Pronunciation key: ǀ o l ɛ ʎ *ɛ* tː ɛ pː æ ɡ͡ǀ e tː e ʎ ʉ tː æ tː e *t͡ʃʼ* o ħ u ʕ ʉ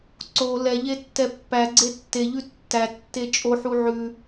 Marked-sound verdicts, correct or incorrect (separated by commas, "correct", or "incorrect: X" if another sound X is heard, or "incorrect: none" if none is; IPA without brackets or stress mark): incorrect: e, correct